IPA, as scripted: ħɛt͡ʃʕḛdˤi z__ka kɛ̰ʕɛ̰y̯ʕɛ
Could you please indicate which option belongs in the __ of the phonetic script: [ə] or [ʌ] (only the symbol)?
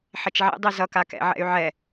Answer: ʌ